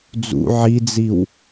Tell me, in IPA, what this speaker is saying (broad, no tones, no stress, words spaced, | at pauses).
d͡zṵ ʕid͡ziw